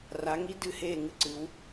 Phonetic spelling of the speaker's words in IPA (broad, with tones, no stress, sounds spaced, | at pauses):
r a˩˧ ŋ i˧˥ d ɨ˥˨ h eː˥˨ ŋ ɨ˧˥ ǀ ɨ˩˧ w